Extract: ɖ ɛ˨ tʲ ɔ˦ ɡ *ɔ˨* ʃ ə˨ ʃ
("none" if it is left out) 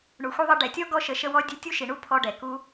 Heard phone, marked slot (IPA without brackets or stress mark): ɔ˧